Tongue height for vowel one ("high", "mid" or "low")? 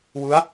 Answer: high